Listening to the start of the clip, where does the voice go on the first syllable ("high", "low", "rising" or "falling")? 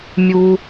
low